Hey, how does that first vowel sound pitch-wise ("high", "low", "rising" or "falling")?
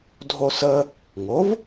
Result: high